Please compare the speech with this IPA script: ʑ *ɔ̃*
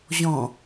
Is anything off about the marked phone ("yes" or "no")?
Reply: no